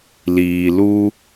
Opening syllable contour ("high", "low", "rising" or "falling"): low